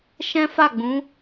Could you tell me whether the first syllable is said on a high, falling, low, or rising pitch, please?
high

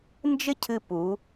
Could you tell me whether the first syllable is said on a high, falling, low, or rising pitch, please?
high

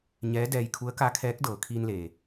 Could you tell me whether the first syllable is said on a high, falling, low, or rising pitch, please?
rising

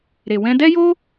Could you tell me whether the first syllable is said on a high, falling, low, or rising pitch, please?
low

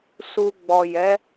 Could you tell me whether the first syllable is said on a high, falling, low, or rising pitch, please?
low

